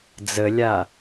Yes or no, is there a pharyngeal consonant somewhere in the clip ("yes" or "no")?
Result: no